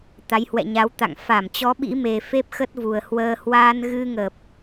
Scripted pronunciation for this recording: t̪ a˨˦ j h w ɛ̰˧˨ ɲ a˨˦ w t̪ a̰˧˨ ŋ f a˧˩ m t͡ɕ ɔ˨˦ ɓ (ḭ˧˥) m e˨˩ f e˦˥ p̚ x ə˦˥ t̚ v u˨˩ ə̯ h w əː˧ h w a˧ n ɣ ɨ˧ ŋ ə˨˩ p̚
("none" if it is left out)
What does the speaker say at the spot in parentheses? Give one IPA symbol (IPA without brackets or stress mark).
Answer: ḭ˧˥